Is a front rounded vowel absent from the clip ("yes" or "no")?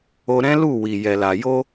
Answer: yes